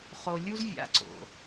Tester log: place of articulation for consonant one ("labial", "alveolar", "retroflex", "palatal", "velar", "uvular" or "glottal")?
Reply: uvular